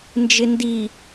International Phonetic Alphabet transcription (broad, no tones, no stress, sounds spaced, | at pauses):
n d͡ʒ ɪ n d i